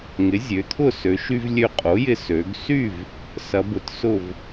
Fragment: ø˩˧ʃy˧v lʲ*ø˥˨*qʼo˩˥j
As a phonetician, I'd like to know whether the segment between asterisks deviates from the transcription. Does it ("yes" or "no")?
yes